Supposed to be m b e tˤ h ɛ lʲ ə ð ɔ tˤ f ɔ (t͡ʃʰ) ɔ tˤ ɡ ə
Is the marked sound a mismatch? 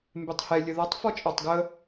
yes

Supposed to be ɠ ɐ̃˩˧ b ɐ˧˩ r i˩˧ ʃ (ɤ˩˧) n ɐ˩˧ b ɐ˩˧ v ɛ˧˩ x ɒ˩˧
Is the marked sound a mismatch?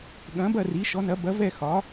yes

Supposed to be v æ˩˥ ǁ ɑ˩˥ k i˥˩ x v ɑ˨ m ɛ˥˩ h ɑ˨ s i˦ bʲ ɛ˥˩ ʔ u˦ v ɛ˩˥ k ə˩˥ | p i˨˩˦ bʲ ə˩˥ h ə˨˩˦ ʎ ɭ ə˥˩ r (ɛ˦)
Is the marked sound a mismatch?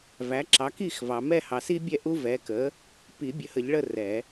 yes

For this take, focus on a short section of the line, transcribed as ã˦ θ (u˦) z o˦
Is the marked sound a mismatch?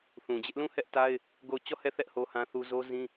no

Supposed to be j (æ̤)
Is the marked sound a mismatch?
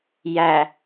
yes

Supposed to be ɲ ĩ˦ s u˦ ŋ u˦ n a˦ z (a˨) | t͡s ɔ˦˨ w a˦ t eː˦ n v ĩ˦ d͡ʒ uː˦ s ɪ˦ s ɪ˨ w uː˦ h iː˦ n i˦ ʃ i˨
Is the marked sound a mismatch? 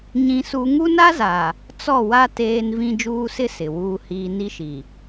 no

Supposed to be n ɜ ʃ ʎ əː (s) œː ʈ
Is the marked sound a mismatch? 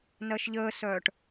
no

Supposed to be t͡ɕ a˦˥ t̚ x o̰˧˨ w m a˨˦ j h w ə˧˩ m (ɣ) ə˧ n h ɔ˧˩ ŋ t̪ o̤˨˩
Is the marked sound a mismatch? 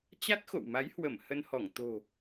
yes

